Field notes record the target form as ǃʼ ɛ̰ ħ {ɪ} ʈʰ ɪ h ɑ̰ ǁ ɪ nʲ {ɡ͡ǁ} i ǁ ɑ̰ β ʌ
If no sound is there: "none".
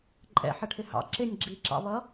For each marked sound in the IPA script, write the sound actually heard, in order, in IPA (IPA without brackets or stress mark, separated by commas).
ə, ɡ͡ǁ